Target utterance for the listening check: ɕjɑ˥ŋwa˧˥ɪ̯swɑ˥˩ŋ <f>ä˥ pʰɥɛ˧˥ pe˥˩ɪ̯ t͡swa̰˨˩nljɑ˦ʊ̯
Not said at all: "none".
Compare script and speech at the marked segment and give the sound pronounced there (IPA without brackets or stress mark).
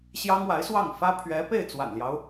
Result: f